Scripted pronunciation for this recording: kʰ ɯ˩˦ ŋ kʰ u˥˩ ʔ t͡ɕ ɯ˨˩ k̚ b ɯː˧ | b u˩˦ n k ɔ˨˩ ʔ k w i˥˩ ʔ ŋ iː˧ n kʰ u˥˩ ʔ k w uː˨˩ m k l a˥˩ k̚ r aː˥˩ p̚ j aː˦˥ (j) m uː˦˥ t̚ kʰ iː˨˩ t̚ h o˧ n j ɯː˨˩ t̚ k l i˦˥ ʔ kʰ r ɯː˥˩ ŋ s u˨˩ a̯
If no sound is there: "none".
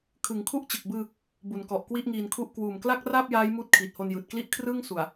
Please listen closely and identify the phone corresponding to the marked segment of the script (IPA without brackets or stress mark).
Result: j